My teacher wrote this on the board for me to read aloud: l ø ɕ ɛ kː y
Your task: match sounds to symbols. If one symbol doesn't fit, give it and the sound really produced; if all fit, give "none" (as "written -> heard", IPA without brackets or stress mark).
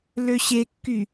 ɛ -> e